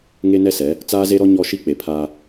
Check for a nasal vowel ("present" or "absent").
absent